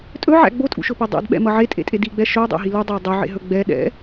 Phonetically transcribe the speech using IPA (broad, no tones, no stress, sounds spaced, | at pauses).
tʼ ɵ ʕ æ̰ ɡ͡b o tʼ ṵ ʃ ɵ p e dˤ æ̰ d ɓ ɛ̰ m ʌ ʕ e tʼ ḛ tʼ e d i ɡ͡b ɛ ʃ ɵ u̯ dˤ æ̰ ɦ i l u dˤ ɘ y̯ dˤ ɵ ʕ ḛ ɦ ɵ ɡ͡b ɛ ɗ ɛ̰